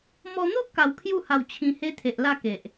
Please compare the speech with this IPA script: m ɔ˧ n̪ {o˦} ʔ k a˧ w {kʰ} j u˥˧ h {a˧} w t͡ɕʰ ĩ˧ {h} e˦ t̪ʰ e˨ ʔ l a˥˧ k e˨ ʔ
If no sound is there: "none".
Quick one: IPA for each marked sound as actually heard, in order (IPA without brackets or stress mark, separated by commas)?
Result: o˦, kʰ, a˧, h